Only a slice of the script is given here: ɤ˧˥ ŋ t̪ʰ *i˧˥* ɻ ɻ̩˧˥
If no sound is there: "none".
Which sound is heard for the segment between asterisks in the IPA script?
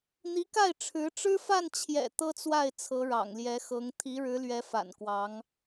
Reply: i˧˥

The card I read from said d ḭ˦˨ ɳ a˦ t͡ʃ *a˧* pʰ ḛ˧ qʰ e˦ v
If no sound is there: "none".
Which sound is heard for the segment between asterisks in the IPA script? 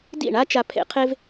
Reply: a˧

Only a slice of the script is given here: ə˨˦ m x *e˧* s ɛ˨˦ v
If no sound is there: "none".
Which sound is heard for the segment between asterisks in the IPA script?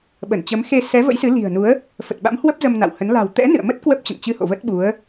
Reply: e˧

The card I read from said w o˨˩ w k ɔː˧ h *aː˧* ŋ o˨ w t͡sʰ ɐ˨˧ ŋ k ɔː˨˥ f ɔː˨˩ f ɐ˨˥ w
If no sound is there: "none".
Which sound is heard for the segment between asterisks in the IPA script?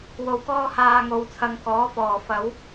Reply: aː˨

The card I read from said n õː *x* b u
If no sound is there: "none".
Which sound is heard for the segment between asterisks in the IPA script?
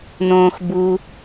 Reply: x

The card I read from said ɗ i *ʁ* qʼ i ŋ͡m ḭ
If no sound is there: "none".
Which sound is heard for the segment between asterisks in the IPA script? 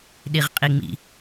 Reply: ʁ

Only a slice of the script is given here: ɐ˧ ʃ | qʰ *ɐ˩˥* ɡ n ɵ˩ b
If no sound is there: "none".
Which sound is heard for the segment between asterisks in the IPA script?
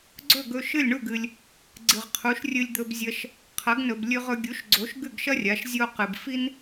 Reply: ɐ˩˥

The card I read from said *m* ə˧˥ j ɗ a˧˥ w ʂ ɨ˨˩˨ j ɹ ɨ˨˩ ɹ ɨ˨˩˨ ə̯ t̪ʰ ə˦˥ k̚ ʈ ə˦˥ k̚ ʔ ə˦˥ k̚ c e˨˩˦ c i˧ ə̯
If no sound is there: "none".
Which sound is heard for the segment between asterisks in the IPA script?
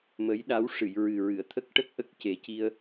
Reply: m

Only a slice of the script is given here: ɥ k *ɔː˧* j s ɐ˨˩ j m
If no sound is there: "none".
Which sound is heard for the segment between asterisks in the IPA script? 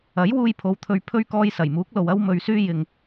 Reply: ɔː˧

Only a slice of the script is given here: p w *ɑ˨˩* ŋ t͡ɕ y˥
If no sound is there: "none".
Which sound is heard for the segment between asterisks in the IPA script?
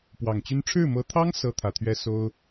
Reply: ɑ˨˩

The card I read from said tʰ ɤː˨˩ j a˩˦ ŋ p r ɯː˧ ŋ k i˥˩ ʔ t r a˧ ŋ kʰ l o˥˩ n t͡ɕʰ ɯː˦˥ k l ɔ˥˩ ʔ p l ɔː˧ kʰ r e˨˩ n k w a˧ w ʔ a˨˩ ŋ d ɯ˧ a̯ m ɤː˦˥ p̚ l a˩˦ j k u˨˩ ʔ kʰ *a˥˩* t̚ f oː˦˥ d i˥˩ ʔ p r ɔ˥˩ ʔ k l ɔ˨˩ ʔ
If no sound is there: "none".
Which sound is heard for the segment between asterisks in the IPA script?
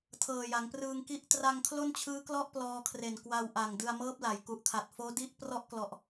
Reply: a˨˩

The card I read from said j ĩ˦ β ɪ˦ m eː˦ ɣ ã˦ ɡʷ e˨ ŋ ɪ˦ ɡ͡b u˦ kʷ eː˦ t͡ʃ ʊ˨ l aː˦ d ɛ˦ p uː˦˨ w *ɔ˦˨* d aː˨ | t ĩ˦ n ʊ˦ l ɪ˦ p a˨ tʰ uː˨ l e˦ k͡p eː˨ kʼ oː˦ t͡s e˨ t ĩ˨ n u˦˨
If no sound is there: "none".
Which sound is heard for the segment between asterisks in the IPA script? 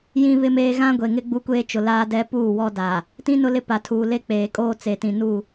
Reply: ɔ˦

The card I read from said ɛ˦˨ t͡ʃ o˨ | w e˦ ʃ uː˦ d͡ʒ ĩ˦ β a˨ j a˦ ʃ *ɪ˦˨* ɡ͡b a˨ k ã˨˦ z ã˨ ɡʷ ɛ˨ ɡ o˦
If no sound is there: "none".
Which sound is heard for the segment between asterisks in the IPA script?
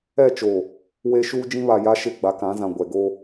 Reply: ɪ˦˨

